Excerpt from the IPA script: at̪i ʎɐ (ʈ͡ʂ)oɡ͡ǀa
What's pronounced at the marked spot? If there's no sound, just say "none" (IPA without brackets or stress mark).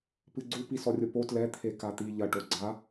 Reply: ʈ